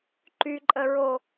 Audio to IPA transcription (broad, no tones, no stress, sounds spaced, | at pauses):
ǃ y ǃʼ ə ɹ o